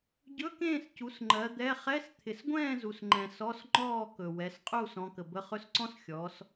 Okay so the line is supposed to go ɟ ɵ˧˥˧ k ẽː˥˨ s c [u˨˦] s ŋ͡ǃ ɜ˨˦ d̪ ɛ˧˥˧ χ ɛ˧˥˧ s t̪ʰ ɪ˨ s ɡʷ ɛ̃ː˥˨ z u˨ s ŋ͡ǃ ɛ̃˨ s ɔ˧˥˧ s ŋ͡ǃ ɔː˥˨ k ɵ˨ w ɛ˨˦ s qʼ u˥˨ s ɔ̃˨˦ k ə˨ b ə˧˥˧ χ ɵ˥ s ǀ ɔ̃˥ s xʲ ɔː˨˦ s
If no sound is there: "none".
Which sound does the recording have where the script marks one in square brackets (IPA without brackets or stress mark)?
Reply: u˨˦